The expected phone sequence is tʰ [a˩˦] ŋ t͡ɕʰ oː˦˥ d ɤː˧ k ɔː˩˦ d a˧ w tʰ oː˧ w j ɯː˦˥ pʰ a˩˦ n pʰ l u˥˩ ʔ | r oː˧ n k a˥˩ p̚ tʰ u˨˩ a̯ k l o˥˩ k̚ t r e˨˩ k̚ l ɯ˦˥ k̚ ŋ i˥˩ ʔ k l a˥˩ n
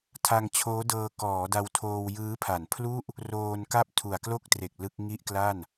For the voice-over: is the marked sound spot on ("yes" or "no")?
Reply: no